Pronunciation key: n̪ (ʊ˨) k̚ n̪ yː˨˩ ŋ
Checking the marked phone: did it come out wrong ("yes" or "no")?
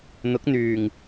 yes